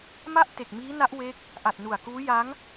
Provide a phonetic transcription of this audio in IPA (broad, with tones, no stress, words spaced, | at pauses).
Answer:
ma˥˩ʔ te˨˩k̚miː˦˥ na˦˥ʔwe˦˥k̚ | ʔa˨˩t̚nu˨˩a̯kuː˦˥ ja˦˥ŋ